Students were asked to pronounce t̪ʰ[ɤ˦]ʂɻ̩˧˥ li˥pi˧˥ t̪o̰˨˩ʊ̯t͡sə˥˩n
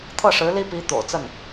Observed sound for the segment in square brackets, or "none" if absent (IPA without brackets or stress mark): ɤ˥˩